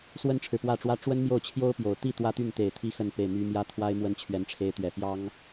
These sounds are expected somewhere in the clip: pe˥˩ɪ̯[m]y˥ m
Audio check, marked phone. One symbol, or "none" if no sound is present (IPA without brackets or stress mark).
m